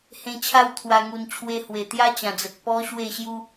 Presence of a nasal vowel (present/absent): present